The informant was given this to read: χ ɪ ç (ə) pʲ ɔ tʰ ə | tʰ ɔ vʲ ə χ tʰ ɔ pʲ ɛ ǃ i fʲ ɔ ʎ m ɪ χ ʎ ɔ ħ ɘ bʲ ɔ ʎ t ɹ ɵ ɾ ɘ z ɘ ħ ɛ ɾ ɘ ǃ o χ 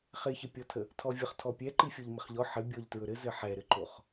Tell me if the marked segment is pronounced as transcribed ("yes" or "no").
yes